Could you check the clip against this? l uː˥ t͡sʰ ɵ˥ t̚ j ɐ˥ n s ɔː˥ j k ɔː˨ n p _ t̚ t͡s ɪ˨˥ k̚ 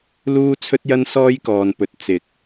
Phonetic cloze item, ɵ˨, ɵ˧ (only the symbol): ɵ˨